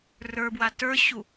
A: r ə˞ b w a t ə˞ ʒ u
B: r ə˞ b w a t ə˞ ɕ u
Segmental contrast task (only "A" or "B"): B